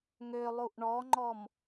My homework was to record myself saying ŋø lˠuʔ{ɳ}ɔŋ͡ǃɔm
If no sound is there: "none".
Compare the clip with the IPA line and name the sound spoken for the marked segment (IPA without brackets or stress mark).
ɳ